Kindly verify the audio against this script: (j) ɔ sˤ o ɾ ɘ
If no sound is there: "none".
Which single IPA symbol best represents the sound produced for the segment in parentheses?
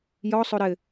j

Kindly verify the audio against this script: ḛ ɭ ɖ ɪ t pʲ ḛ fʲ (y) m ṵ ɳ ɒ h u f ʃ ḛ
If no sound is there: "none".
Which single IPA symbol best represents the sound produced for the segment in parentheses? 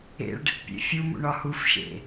u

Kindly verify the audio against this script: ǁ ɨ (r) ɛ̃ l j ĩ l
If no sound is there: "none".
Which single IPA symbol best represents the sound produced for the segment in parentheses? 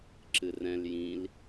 r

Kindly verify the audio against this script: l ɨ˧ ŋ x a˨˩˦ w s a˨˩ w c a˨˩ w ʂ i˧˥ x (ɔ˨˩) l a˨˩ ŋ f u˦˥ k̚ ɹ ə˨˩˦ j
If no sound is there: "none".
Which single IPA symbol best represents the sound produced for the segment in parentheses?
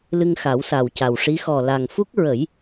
ɔ˨˩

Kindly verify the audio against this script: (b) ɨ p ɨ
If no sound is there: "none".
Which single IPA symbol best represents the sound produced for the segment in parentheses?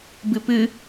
b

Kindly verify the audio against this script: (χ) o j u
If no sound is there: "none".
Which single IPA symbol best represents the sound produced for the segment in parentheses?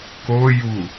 k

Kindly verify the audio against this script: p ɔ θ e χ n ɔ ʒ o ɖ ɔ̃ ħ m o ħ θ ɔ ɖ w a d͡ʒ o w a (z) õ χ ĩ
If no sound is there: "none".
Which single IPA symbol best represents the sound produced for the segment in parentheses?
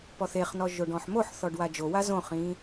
z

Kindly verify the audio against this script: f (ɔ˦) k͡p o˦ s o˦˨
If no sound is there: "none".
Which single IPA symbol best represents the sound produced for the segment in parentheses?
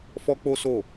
ɔ˦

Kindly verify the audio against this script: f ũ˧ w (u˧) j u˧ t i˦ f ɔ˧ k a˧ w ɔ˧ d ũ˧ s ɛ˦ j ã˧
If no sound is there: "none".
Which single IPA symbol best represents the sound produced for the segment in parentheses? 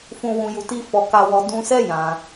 ũ˧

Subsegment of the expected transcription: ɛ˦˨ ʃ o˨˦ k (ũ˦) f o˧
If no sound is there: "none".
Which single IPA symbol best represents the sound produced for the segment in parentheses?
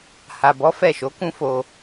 ũ˦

